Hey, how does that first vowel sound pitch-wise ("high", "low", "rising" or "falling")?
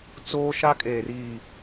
high